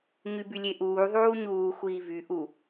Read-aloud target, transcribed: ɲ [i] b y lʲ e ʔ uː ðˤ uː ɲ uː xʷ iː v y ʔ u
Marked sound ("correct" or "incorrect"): incorrect